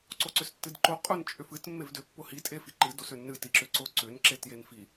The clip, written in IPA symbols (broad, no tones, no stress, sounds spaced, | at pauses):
ǀ o ǀ ʏ s tː ɨ d ǃ o qʼ ʊ n t͡ʃʼ ʏ f ɨ t mː e v d ʏ pː ʊ h i tʼ e f i ǃ ɨ d o s ʏ nː ɨ t i ǁ ʏ ǀ ʊ ǀ ʏ n ǁ e t j e n f i